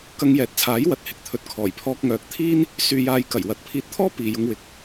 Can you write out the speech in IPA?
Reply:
kɐ˧ŋjɛː˨˥t̚t͡sʰaː˨˥j wɐ˨˥t̚hɪ˨k̚t̪ʰɵ˨t̚ kʰɔː˨˩jpʰɔː˧k̚ŋœː˨k̚t̪ʰiː˥n | syː˨jaː˨jkɐ˨˩j wɐ˨˥t̚pʰiː˧t̚t̪ʰɔː˥ piː˨jʊ˧ŋwɪ˨k̚

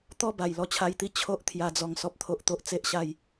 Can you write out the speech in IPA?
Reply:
t̪ɔ˥˧ba˨˩j lɔ˧t͡ɕʰa˧jt̪i˦ t͡ɕʰo˦ʔ t̪ʰja˧d͡zɔ˧ŋ sɔ˦p̚t̪ʰo˦ʔt̪o˦ʔ t͡se˦ʔɕa˥˧j

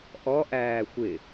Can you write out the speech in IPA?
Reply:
ʔɔʔæː xʷɪ

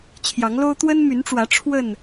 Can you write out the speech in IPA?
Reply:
t͡ɕʰjɑ˨˦ŋlo˦ʊ̯ t̪wə˦nmy˨˦nʈ͡ʂwä˨˦ ʈ͡ʂʰwə˥˨n

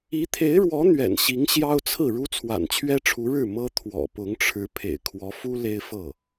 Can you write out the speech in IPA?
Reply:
i˧˥t̪ʰe˧˥ɪ̯ɻwɔ˧˥ n̪ɥɛ̰˨˩nɕi˧˥ŋ ɕjɑ˥ʊ̯t͡sʰɹ̩˥˩ ɻu˥t͡sʰwa̰˨˩nt͡ɕʰɥɛ˥ʈ͡ʂʰu˧˥ ɻɻ̩˥˩ mɤ˥ t̪ʰwɔ̰˨˩pʊ˧˥ŋʈ͡ʂʰɻ̩˧˥ pʰḛ˨˩ɪ̯kʰwɔ˧˥fu˥ le˥ɪ̯fɤ˥˩

